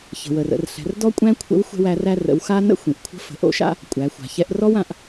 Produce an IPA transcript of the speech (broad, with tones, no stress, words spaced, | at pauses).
çə̤˩wə˩r ə̰˩˧rɬɛ̤˩˧rdɔ˥ kʷʼæ̃˥kʷʰə̰˧˥w xʷɛ̤˧w æ˩˧ræ˧rə̰˩˧w xa˥nə̰˥ xʷĩ˩ʔkʷʰə̤˧˥ fə̤˩ ʔo̰˥ʃa̰˥ | kʷʼæ˩˧xʷa̤˩ çɛ˧ʔrɔ˥w ã˩ʔ